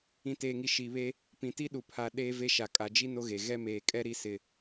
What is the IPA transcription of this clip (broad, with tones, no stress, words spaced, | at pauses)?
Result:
ĩ˨teː˨ŋi˨ ʃi˨βe˦ | pĩ˨ti˦ɗu˨ pʰa˨ ɗeː˦ve˦ʃa˨ kʼa˨ d͡ʒi˦ no˦ɣe˨ ɣɛ˦ meː˨kʼɛ˦ ɾi˦ sɪ˦